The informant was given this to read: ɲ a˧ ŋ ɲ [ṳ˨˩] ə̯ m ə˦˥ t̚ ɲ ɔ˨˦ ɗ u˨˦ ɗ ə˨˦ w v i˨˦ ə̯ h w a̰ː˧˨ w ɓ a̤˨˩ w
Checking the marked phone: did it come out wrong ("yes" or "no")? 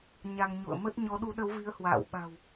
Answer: yes